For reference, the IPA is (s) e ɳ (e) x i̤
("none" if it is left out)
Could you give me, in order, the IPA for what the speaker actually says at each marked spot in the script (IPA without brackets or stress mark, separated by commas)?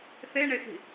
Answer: θ, e